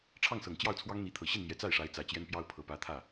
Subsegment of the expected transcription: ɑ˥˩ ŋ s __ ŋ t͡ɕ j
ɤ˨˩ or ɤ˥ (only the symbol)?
ɤ˨˩